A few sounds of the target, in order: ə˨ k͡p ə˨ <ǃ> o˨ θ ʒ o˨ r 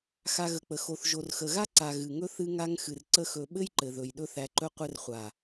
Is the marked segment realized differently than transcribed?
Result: yes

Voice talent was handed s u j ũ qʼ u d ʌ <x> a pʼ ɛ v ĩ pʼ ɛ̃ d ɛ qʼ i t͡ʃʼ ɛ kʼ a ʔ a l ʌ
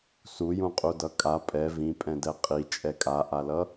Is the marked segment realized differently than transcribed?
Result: yes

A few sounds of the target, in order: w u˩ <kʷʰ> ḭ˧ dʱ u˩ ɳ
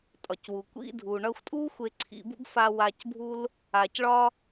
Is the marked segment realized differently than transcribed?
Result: yes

